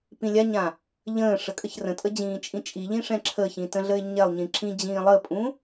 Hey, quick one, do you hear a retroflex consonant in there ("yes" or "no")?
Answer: yes